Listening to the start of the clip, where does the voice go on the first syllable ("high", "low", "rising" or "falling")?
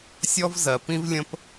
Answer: high